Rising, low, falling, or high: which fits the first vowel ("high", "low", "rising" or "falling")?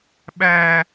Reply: high